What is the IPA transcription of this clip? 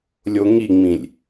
lʲ o ŋ i ŋ͡m ĩ lʲ

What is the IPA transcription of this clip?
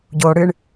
ɟ o ɽ ɨ ɳ

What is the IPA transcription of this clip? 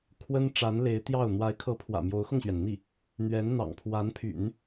kʰ w ə˥ n ʈ͡ʂ a˧˥ n l e˧˥ ɪ̯ t̪ j ɑ˥˩ ʊ̯ n̪ w a˧˥ ɪ̯ kʰ ɤ˧˥ pʰ w ä̰˨˩ m j o˧˥ ʊ̯ x ʊ˧ ŋ ɕ ɥ ɛ˩ n n̪ i˥˩ | n̪ ɥ ɛ˧˥ n n̪ ɑ̰˨˩ ŋ pʰ w a˧˥ n pʰ y̰˨˩˦ n

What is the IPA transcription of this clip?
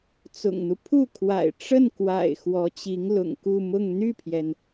t͡s ʊ̰˨˩ ŋ n̪ u˦ pʰ u˥˩ kʰ w a̰˨˩ ɪ̯ ʈ͡ʂ ə˥˩ n k w a̰˨˩ ɪ̯ x w ɔ˧˥ t͡ɕ i˧˥ ŋ l ʊ̰˨˩ ŋ k u˥˧ m ʊ˥˧ ŋ n̪ y˥˩ pʰ j ɛ˩ n

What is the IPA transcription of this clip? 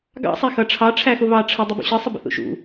ɡ ɑ̰ sˤ æ x ʌ ʈ͡ʂʰ ɑ ʈ͡ʂʰ æ x ʊ β ɑ ʈ͡ʂʰ ə dˤ ʊ b ṵ ɕ ə sˤ ə b ə̰ θ ṵ ʃ ṵ

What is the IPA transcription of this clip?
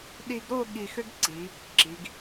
ɗ i˧ ɡ ɾ o˥˧ ɠ i˧ x ʏ˥ ɡ ǀ i˩˧ | ǁ i˩˧ ɡ

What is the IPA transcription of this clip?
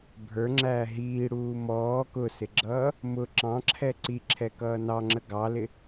bʱ ə˞ ŋ͡ǁ æː ɦ iː ɽ uː m ɔː k ʊ s ɪ ɡ͡ǁ ʌː | m ʊ ǁ ɑ̃ ǁʰ ɛ ǀ i ǁʰ ɛ k ʌː n ɑ ŋ͡ǁ ə ɡ ɑ l ɪ

